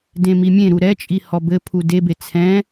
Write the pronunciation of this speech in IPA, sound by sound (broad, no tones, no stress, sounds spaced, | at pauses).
d ẽ m i mʲ ẽ ɾ u ɾ ɛ t͡ʃʼ i h ɔ b ɘ pʰ u d e b e t͡sʰ ɛ̃